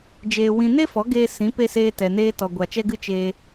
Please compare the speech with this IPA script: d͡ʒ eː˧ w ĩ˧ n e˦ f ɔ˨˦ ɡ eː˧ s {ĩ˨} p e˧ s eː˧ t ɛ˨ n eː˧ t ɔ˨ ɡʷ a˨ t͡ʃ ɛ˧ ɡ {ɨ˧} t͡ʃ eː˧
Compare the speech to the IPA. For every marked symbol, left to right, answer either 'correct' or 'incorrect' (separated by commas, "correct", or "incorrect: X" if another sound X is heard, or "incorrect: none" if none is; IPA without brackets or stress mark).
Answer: incorrect: ĩ˨˦, correct